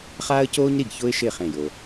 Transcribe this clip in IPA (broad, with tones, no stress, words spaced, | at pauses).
χaː˥ə̯ coː˥ɲ ɾi˧˩ɡ çʊː˥ɪ̯ʃɪː˥˩χẽ˧˩ jo˩